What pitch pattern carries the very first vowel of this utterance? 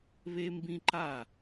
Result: high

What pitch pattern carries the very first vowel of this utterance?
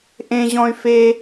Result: high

